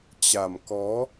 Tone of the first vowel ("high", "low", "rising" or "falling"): low